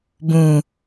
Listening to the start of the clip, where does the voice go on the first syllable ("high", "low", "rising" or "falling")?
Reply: low